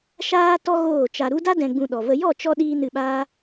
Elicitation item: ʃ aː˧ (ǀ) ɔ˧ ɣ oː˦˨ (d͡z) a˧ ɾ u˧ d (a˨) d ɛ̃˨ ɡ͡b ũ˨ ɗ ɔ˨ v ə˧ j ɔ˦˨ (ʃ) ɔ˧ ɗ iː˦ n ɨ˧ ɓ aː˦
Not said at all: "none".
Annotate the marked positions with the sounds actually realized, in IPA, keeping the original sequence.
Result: t, t͡ʃ, a˦, t͡ʃ

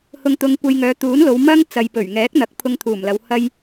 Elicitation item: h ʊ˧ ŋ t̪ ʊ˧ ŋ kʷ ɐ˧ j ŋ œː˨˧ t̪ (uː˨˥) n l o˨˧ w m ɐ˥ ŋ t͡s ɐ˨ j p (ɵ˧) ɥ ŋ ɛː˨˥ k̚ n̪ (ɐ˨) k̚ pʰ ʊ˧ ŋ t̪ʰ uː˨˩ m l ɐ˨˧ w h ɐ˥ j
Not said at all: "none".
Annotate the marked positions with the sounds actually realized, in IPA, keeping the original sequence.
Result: uː˨˥, ɵ˨˩, ɐ˨˥

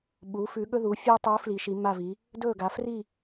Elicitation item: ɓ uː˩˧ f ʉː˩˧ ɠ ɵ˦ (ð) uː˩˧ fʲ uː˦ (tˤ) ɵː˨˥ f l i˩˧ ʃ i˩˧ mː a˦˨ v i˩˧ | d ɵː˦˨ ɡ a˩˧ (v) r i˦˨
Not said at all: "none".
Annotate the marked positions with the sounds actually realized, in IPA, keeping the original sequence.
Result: ð, tˤ, f

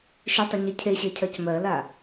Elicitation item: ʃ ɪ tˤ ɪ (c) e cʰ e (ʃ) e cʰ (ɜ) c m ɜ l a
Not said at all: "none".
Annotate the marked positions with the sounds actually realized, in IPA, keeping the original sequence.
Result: ɲ, ɕ, ɜ

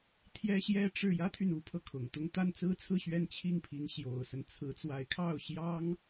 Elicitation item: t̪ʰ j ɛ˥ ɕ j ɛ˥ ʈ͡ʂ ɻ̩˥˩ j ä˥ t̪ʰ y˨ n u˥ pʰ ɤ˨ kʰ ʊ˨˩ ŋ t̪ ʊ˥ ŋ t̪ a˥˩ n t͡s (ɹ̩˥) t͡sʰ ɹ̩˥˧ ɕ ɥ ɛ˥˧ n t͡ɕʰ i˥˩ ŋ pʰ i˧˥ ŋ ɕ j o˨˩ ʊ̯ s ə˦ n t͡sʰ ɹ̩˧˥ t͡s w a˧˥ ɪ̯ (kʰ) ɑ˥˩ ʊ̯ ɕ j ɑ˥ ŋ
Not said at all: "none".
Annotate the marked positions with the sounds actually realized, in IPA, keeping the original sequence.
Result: ɹ̩˥, kʰ

